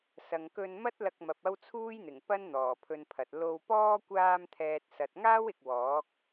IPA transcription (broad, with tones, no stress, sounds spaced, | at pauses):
s ɐ˨ ŋ k ɵ˧ n m ɐ˥ t̚ l ɐ˧ k̚ m ɐ˨ p̚ ɐ˥ w t͡sʰ uː˥ j n̪ ɪ˨˩ ŋ p ɐ˥ n n̪ ɔː˨˩ pʰ ɵ˧ n pʰ ɐ˨ t̚ l o˧ w p ɔː˥ kʷ aː˧ m t̪ʰ ɛː˨ t̚ s ɐ˨ t̚ ŋ aː˥ w ɪ˨ k̚ w ɔː˨˥ k̚